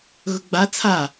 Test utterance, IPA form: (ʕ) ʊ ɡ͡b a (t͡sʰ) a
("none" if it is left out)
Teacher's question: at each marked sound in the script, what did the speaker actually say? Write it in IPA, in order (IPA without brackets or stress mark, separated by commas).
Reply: ɣ, t͡sʰ